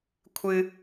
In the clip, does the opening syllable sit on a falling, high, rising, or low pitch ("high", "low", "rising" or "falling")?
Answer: high